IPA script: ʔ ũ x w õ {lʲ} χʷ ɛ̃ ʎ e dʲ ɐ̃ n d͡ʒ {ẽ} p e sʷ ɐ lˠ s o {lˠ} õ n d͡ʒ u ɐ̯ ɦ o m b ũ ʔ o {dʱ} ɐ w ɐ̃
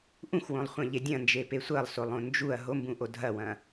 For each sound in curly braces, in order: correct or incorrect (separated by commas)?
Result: incorrect, incorrect, correct, correct